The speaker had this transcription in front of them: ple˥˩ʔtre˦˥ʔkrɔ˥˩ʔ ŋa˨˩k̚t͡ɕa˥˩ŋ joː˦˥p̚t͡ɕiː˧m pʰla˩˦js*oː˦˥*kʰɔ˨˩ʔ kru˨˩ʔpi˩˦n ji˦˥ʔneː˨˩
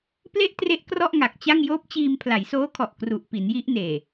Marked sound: correct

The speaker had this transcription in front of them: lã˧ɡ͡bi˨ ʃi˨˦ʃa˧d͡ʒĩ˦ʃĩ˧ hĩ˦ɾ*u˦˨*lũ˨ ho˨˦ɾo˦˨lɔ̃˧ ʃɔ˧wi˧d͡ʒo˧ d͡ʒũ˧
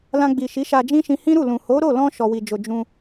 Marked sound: correct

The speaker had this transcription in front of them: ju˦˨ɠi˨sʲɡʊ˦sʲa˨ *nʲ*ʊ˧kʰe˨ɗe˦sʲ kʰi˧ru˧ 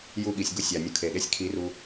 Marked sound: correct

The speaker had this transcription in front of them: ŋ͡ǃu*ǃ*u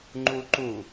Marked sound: correct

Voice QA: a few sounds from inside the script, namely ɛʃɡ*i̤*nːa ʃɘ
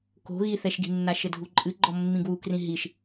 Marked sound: correct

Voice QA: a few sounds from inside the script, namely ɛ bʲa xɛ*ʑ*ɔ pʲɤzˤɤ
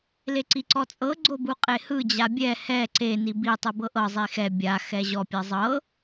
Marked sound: correct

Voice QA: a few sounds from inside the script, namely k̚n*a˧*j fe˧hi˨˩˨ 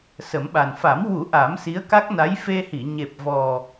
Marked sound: incorrect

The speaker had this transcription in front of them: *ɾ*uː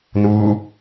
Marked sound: incorrect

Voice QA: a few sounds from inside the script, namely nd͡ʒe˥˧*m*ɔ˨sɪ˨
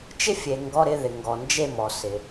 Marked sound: correct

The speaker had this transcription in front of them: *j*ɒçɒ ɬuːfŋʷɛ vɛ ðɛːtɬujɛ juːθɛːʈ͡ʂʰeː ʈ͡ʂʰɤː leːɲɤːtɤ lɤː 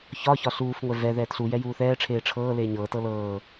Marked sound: incorrect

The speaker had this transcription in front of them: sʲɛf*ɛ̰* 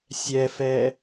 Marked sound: incorrect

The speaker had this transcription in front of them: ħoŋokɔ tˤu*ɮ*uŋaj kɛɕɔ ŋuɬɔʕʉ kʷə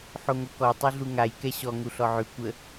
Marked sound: correct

